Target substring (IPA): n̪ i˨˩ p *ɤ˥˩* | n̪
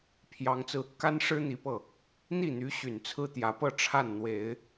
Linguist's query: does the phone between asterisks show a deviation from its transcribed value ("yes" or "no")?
no